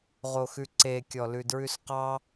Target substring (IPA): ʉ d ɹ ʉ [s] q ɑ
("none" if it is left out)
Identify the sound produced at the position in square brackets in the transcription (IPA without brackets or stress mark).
s